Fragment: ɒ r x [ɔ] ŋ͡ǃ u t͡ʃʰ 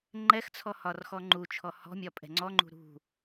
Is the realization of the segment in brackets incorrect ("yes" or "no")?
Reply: no